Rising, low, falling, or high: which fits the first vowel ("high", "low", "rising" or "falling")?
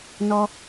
high